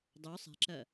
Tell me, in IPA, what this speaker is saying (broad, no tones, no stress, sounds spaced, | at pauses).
dˤ ø sˤ e̤ ǁ ɜ